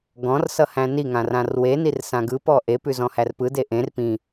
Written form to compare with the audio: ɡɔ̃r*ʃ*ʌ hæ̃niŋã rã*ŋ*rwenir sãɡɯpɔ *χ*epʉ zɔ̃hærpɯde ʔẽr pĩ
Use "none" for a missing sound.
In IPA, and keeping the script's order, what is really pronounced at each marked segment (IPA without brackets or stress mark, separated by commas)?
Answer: s, none, ʔ